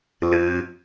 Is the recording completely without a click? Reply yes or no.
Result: yes